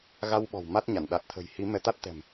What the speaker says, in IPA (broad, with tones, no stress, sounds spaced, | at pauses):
ɣ a˧ w ɓ ɔ̤˨˩ w m a˦˥ t̚ ɲ a˧˩ n ɗ a˨˩ t̚ t̪ʰ ə̤˨˩ j h i˨˦ m ɛ˧ t̪ a˦˥ t̚ t̪ ɛ̤˨˩ m